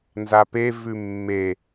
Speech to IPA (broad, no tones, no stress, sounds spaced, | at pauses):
n z a p e v ʉ mː e